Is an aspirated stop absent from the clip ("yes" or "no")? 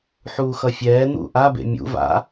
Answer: yes